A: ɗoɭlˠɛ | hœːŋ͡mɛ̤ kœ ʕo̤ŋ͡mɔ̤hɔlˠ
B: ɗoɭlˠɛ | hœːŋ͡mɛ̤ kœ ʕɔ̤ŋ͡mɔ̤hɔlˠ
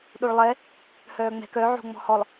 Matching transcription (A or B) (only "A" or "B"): A